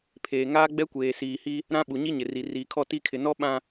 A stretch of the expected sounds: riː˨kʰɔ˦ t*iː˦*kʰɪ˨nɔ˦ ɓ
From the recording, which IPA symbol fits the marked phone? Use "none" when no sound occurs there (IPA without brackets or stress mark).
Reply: i˦